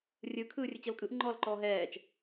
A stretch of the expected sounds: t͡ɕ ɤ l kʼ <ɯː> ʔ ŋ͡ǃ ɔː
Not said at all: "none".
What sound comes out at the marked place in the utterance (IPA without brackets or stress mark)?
ɯ